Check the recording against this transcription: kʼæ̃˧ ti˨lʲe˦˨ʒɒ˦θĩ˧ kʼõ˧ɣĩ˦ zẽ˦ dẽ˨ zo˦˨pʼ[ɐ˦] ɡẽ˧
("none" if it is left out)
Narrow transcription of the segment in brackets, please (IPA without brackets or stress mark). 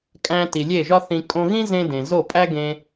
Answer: æ˦